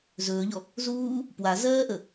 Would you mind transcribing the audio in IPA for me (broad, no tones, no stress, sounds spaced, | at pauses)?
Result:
z ɵː ʎ ɔ | z uː | p w a z ɜː ʔ ə